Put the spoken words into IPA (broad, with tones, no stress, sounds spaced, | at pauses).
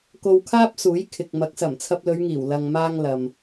k o˧ w kʰ aː˥ p̚ s uː˨˥ j kʰ ɪ˨ k̚ m ɐ˨˥ k̚ s ɐ˨˩ m t͡sʰ ɐ˧ p̚ l ɵ˨˧ ɥ ŋ iː˨˩ w l ɐ˨ ŋ m aː˧ ŋ l ɐ˨ m